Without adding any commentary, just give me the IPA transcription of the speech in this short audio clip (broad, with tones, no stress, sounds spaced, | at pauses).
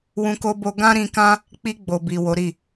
w ũ˧ k o˧ b o˧ ɡ ã˦ ɾ ĩ˧ k ã˦ | k͡p i˧ ɡ͡b o˨ b i˨ w o˨˦ ɾ i˦˨